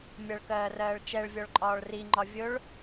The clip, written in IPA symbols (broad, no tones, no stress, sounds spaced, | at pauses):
mʲ ʌ ɭ k ɜː r ɜː ɭ t͡ʃ ɛ ɭ vʲ ɔ ɭ ǃʼ ɒː ɭ r i ŋ͡ǃ ɒ vʲ ʊ ɭ